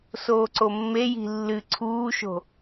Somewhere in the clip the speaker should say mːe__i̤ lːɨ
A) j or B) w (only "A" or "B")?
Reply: A